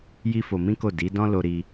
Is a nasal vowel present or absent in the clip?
present